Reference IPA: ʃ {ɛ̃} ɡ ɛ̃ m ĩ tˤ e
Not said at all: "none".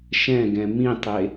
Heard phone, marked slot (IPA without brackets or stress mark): ɛ̃